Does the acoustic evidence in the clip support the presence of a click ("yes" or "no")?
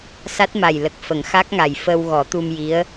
no